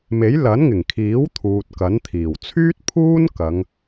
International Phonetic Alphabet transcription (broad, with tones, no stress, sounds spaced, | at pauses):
m e˨˥ j l ɐ˨˥ n ŋ ɪ˨˩ ŋ kʰ iː˨˥ w t̪ʰ uː˨ t̚ k ɐ˨˥ n t̪ʰ iː˨˩ w t͡sʰ yː˥ t̚ pʰ uː˥ n k ɐ˨˧ ŋ